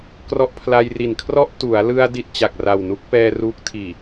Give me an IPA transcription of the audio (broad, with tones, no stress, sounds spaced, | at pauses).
k r ɔ˦˥ ʔ pʰ l a˧ j r i˨˩ n kʰ r ɔ˥˩ ʔ t u˩˦ a̯ l ɯ˧ a̯ d i˥˩ t̚ t͡ɕ a˨˩ k̚ r a˨˩ w n u˦˥ k̚ p ɛː˧ r uː˦˥ k̚ tʰ iː˨˩